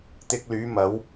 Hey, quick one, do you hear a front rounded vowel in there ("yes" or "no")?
yes